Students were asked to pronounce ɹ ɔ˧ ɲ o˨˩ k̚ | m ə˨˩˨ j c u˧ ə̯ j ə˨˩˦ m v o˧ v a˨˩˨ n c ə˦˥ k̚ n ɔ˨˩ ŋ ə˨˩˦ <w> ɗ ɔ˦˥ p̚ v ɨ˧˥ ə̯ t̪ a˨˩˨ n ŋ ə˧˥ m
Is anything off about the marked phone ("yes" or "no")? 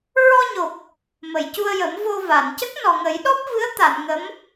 yes